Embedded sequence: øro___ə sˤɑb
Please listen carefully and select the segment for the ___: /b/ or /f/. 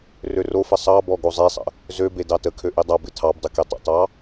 f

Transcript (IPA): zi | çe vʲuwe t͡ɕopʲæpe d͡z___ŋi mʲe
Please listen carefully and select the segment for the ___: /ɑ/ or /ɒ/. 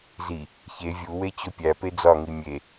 ɒ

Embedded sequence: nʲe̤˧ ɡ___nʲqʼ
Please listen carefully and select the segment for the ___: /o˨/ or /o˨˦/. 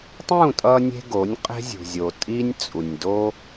o˨˦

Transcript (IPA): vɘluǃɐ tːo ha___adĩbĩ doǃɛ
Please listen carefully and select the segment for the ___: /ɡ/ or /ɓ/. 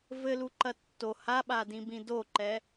ɓ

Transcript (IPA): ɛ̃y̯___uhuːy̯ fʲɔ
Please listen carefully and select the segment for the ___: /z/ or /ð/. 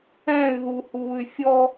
ð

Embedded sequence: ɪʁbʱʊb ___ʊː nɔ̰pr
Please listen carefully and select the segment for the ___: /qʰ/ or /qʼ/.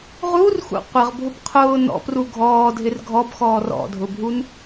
qʰ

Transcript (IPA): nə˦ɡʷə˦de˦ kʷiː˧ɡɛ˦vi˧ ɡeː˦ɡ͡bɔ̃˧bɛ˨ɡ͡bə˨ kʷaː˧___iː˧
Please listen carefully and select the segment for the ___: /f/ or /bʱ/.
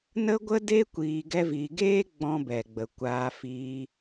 f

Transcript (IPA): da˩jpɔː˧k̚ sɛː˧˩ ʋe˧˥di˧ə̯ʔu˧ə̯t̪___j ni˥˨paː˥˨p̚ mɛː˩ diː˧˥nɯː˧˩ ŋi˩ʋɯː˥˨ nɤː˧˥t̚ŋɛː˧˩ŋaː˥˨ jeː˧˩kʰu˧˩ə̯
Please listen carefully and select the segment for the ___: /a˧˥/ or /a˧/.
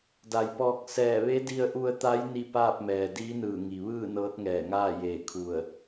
a˧˥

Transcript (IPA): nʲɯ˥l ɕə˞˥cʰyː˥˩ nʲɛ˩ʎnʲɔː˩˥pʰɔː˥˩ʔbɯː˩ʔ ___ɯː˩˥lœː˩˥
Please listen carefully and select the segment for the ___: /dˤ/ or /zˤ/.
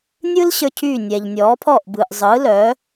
zˤ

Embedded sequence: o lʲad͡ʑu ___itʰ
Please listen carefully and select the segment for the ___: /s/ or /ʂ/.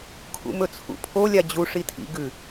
ʂ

